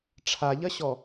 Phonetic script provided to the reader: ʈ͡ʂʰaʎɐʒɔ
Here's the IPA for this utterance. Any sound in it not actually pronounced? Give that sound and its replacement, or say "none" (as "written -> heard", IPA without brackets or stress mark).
ʒ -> ɕ